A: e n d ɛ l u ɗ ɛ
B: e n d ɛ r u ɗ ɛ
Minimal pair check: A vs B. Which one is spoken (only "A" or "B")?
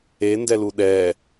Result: A